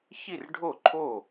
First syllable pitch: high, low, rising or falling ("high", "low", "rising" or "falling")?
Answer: falling